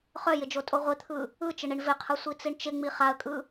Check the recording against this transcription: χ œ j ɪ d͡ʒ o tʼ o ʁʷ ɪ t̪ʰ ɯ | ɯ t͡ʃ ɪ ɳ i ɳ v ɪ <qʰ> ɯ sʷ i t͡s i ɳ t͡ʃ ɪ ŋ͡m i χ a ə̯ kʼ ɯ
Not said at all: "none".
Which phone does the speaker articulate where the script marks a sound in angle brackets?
qʰ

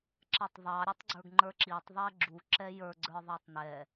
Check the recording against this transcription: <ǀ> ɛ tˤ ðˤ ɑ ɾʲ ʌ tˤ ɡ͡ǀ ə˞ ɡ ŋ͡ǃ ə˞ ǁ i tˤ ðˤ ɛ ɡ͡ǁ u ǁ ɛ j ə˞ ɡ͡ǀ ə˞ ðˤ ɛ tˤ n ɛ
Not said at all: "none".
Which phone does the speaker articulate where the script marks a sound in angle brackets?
ǁ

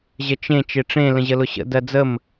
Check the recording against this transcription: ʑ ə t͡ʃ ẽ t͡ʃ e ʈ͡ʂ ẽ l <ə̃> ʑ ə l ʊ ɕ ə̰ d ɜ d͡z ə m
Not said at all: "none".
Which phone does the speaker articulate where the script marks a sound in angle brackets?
ə̃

